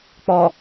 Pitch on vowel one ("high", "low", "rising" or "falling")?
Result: low